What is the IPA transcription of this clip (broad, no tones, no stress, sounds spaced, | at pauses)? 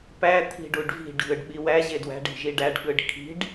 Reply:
p æ t̪ʰ i̤ ɖ u ɖ v i̤ ɖ ɣ ɯ ɖ ɓ i w æ ʑ e d w æ̤ ɖ i̤ ʒ i ɖ æ ɖ ɠ ɯ ɖ kʰ i̤ ɖ